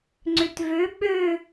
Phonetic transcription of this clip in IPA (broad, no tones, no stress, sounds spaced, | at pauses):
ŋ͡ǀ ø t v ø ɓ ø